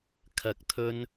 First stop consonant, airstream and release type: aspirated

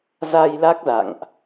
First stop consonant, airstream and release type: plain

